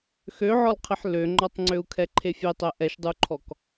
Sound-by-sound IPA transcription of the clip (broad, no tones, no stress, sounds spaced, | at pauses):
x ø ʕ ɔ l qʰ ɪ ħ l ø ŋ͡ǃ ɔ tˤ ŋ͡ǀ ø u̯ kʰ ɛ ǃʰ e fʲ e tˤ ɛ ʔ ɛ ʃ dˤ u ǃʰ ɔ k